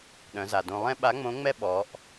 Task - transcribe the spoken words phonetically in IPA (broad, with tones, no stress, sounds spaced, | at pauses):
ɗ œ̃˩˧ z a˩ d õ˧ lˠ ɛ̃˥ ɓ a˧˥ ŋ͡m õ˧˥ ŋ͡m ɛ˥ ɓ ɔ˩˧ ʔ